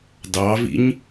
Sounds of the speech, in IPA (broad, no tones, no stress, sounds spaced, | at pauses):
d ɑ v ḭ ɲ